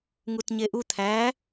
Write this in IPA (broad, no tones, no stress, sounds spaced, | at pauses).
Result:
ŋ u t ɲ e ʔ u t̪ʰ æ